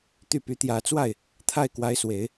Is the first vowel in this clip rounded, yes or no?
yes